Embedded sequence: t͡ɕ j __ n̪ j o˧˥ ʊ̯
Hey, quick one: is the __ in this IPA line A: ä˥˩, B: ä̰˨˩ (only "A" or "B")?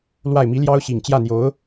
A